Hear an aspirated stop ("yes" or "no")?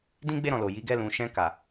no